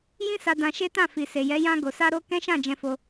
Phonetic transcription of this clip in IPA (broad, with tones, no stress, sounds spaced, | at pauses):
j ĩ˦ s a˧ d ã˧ ʃ e˦ t ã˦˨ f i˨ s e˨ j ɛ˨˦ j ã˧ ɡ o˨ s a˧ ɾ o˦ k ɛ̃˦ ʃ ã˦˨ d͡ʒ ɛ̃˧ f o˧